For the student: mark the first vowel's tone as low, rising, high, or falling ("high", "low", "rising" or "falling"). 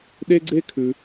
high